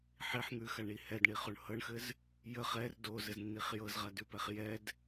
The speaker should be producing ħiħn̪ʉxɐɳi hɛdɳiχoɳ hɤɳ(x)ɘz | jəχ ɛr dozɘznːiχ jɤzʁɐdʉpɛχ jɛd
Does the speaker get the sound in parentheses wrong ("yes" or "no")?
no